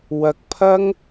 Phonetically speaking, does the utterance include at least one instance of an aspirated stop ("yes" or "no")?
yes